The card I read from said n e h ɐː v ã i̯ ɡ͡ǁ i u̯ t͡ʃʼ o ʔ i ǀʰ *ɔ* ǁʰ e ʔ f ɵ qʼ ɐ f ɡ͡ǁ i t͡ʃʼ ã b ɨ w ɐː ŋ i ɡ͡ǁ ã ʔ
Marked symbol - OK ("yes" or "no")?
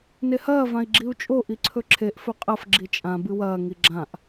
no